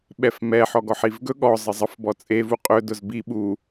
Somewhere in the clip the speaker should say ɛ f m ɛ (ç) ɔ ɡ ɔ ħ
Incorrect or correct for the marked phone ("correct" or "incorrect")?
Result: incorrect